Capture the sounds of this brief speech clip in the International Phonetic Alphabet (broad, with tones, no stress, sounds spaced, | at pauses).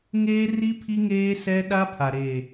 ŋ eː˦ r i˦ pʰ i˦ ŋ eː˦ s ɛ˦ ɗ a˦ pʰ a˨ ɾ e˨